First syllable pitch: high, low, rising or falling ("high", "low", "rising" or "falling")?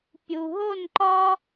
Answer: low